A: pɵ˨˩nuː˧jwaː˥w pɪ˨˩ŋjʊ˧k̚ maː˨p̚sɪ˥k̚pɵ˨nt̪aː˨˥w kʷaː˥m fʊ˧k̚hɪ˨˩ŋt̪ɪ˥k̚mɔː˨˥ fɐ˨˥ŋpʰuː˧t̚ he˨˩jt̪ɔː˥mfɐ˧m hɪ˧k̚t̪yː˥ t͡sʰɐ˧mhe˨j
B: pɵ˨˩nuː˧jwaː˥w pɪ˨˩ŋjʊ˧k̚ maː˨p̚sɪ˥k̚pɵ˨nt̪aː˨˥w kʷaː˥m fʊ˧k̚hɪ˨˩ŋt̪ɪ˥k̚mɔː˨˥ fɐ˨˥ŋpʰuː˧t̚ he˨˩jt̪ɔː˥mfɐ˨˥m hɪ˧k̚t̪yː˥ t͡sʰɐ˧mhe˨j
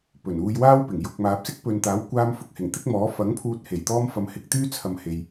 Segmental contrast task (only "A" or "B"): A